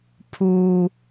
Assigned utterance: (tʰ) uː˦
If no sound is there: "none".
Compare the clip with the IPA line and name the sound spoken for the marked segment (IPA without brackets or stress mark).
pʰ